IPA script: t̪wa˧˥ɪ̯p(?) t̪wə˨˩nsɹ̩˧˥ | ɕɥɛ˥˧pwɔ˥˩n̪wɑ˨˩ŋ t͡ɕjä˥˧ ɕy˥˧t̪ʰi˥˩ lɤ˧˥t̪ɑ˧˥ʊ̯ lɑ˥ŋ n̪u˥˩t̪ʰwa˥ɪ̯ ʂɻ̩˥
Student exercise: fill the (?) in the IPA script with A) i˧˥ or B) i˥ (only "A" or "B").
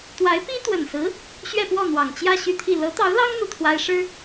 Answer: B